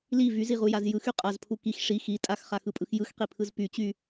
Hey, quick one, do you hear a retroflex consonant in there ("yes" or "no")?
yes